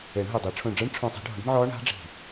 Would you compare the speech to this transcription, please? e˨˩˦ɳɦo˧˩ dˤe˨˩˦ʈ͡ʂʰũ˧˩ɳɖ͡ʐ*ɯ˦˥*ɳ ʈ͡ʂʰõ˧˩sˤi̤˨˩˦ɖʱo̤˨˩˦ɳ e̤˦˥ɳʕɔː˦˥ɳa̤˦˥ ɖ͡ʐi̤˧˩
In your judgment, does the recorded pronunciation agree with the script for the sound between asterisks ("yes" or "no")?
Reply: yes